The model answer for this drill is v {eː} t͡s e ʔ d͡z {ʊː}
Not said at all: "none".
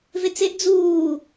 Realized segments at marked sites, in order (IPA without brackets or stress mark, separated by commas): e, uː